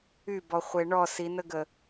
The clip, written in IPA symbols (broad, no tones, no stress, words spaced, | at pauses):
ybɔχʷe ɳɔ sinəɡə